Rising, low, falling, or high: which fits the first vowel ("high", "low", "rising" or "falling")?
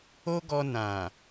high